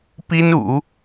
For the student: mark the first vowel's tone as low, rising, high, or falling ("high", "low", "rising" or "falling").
high